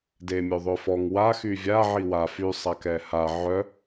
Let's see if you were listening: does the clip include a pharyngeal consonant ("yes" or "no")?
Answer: yes